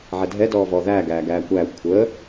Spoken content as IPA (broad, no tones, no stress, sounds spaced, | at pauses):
ʕ ɛ dʱ ɛ d ɔː v ɔː ð æː ɡ æː ɡ æː kʷ æː xʷ kʷʰ əː